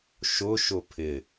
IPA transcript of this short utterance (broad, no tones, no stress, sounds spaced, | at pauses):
ʃ ʊ ʃ ʊ pʰ ɪ